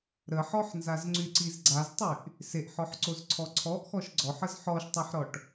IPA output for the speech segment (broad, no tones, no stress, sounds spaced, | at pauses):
ɾ ə ħ ɔ ħ n z a z ŋ͡ǀ y ǀ i z ɡ͡ǀ a z tˤ y ʔ | s e ʔ ħ ɔ ħ ǀ o z ǀʰ ɔ ǀʰ ɔ ʔ x ɔ ʃ ɡ͡ǀ ɔ ħ ə z ħ ɔ ʃ tˤ a ħ ɾ ɔ ʈ